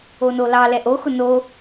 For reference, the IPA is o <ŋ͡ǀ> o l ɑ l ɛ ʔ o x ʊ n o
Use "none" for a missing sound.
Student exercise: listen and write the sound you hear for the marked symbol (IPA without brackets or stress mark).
n